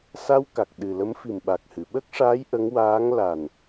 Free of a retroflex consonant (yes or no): no